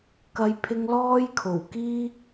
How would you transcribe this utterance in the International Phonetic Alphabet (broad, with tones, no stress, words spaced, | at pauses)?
kɐ˧jpʰɪ˧ŋ lɔː˥jkʰo˨˩wkiː˥